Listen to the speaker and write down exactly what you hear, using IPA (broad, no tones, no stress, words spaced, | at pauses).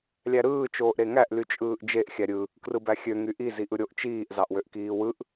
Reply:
lʲæɾɯː t͡ʃoːʔɾeŋæʔ lyt͡ʃʼɯːʔd͡ʒeʔ xʲæɾʲɯ | krɯbæxʲø ŋyʔi ziʔɯɾʲoʔ t͡ʃiːʔ zɑʔwøʔkiːwɯʔ